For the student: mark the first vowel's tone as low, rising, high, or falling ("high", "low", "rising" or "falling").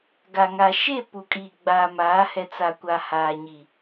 low